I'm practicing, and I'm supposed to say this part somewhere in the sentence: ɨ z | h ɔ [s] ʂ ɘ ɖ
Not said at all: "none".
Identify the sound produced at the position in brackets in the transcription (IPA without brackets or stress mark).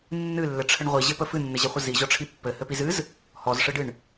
z